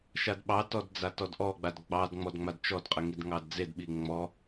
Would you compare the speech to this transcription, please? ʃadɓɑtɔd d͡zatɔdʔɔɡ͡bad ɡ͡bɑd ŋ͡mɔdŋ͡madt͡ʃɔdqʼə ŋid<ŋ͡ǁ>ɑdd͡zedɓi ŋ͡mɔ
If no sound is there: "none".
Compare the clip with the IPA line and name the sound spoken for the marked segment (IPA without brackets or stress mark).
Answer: ŋ